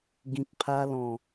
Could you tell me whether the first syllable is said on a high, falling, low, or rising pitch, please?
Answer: low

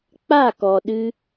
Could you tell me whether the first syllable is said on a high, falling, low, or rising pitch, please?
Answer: falling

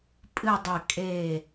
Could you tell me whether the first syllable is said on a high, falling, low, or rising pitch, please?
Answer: falling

